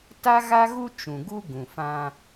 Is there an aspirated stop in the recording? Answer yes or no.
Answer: no